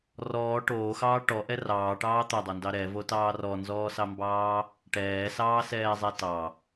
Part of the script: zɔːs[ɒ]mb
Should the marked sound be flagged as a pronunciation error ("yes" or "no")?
yes